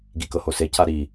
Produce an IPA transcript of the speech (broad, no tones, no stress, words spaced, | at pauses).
ɡikɤhose caɾi